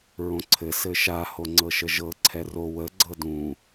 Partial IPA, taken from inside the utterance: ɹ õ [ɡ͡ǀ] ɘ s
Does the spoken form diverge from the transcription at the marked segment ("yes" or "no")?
yes